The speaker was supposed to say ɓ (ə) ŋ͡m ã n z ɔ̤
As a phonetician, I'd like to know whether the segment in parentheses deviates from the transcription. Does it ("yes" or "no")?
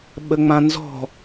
no